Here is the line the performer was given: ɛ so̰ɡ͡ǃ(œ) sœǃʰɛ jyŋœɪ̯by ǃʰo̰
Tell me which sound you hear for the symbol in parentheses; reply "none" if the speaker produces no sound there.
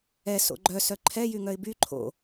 œ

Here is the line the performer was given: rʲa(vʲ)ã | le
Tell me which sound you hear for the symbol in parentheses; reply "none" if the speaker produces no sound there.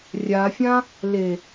fʲ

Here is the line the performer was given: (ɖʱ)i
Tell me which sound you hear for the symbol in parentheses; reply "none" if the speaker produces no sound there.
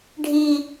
ɖʱ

